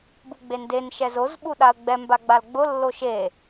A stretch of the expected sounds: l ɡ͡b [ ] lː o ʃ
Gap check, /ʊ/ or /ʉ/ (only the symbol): ʊ